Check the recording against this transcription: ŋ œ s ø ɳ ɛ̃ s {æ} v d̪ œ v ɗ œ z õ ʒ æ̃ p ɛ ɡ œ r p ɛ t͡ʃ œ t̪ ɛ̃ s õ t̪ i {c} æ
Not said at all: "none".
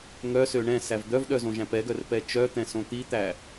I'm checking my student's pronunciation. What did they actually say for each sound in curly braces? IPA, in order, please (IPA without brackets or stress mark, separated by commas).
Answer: æ, t̪